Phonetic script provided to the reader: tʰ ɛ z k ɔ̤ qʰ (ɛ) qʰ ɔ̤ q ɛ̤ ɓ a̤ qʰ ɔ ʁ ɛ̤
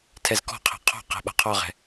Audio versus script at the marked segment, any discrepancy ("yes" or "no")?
yes